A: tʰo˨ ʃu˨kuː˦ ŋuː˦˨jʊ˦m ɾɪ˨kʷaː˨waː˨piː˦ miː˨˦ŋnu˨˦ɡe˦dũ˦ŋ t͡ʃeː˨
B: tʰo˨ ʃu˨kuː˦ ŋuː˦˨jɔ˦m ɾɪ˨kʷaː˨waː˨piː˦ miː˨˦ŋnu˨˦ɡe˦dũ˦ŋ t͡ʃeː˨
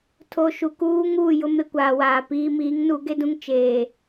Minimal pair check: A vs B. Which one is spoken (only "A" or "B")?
A